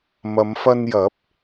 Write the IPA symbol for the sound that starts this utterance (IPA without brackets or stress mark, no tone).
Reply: m